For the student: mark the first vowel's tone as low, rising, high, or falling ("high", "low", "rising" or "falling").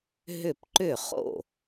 falling